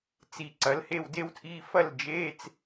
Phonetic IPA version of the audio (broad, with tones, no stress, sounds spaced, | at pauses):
t͡s i˧˩ ǀ ɐ˨˥ l h e˥˧ w d e˥ w tʰ i˧˥˧ f ɐ˥˧ l d͡ʒ e˧˥˧ t͡s